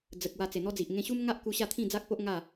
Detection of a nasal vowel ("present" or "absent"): present